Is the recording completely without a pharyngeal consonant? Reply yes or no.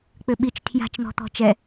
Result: yes